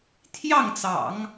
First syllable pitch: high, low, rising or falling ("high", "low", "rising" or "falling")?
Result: falling